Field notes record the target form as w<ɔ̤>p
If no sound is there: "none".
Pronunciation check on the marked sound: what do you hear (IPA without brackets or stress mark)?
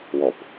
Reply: ɔ